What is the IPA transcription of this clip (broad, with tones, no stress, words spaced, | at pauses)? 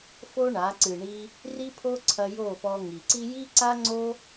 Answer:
fo˦ɳa˨˦ ǀɨ˨ɳi˧ | ri˦pʰo˦ǀʰɐ˧ jo˦˨pɔ˧ŋi˨ ǀi˦ ji˦ǀa˦ŋ͡ǀo˦